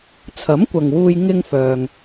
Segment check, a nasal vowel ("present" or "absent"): absent